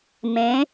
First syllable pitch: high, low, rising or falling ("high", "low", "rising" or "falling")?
rising